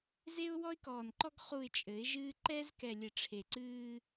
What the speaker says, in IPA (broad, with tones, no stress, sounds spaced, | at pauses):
z e˦ ʊ̯ w ɔ˦ ɪ̯ k ɔː˨ n ǃ ɔ˦ ɡ χ u˨ ɪ̯ t͡ʃʼ ɘ˨˦ ɪ̯ ʒ ɨː˦ ǃ ɛ˦ z k ɛ˨ lʲ ɘ˨ ʈ͡ʂʰ e˨ ǀ ɨː˦